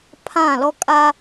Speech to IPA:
pʰ ã˦˨ l ɔ˦ kʼ a˦

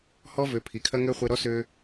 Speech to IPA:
h ɔ˦ v ø˨˦ pʰ i˨ kʰ ɐ˦ ŋ ø˦ χʷ e˧ ɾ ɔ˦ s ø˦

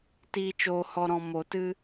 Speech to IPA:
t iː˨ t͡ʃ oː˨ h ɔ˨ ɾ ɔ̃˨ m o˨ t ɨ˧

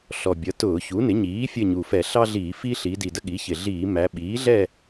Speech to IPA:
ɬ ɔ˨˩ bʲ ʌ˩˥ t ʊː˧˩˧ ç u˩˥ n ɪ˩˥ ɲ iː˩˥ fʲ ə˦˨ ɲ u˨˩ f ɛ˧˩˧ ɬ ɑ˦ ɮ iː˧˩˧ f iː˦ ɬ iː˩˧ d i˨˩ d ə˦ ɠ i˩˥ ç ɪ˨˩ ɮ iː˧˩˧ m æ˩˧ ɓ iː˩˥ ɮ ɛ˦˨

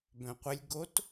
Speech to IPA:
b œ̃ qʷ ə lʲ ɡ o t

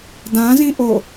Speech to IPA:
d ã z ĩ ʔ o

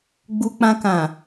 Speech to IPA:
ɡ͡b u˧ k͡p ã˧ k ã˨

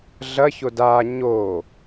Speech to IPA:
ɮ ɐ ç o d aː ɲ oː

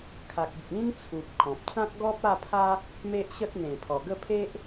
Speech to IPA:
kʰ a˨ k̚ i˨ k̚ ĩ˦ n t͡sʰ u˨ p̚ kʰ ɔ̃˨ p̚ t͡s ã˦ k̚ ɡ ɔ˦ p̚ a˥˧ pʰ a˦ | m e˦ ʔ ɕ ə˦ t̚ n̪ ẽ˨˩ pʰ ɔ˨˩ ɡ ə˥˧ pʰ e˦ ʔ

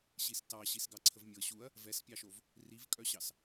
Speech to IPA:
ɕ i s t ɑ ɕ i s ɡ ɑ ǀʰ ə v mʲ ɤ ɕ u ɐ̯ | v ɛ s pʲ ɑ ʃ o v | r i v kʼ œ ɕ ɑ s

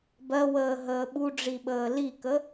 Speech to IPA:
b ɜ w əː ɦ əː ɓ u ɖ͡ʐ i ɓ əː l i k ə

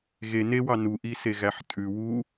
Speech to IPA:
ɣ e n e w ɑ n u ʔ i s e ɣ æ ħ tʼ ʉ w u

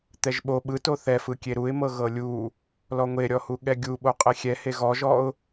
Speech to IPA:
t̪ ɛ ʒ ɓ o ɓ ɯ t o θ ɛ f ɯ kʲ e ɾ u ɪ̯ m ɤ ɣ ɤ lʲ u | l ɔ ŋʷ e ɾʲ ɔ h u ɠ ɛ ɡʲ u ɓ o qʼ e xʲ ɛ h e ɣ ɔ ʒ ɔ ʊ̯

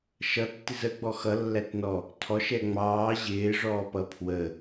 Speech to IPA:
ʃ ʌ tː ɪ z ə ɡ͡b ɔ x ʌ lː æ t n ɔ | tʰ ɔ ʃ ɛ ŋ͡m ɑː ʑ ɪː ʐ ɔː p ʌ pʰ w ə

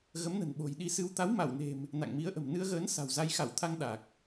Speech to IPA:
ɣ ə˨˦ m n ə̤˨˩ n ɓ o̤˨˩ j ɗ i˧ s ɨ˧ w t̪ a˨˦ w m a˧˩ w n e̤˨˩ m | n a̰˧˨ ŋ m i˨˦ ə̯ ʔ ə̤˨˩ m n ɨ˧ ə̯ ɣ əː˨˦ n s a̤˨˩ w z a˧ j x a˧˩ w t̪ʰ a˧ ŋ ɗ a˨˩ k̚

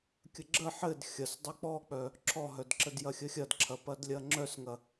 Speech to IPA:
kʲ ə ɡ͡ǁ ə ħ ɘ d xʲ ɐ s dˤ œ k͡p ɔ k͡p œ | ǁʰ ɔ ɦ œ d ǁ ə d j ɐ xʲ ə xʲ ɐ d ǁʰ ɐ p ɐ d lʲ ɐ ŋ͡ǁ œ s ŋ ɐ

